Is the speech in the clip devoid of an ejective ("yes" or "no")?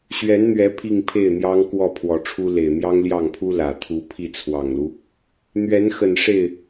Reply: yes